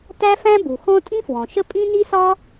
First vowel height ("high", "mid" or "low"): low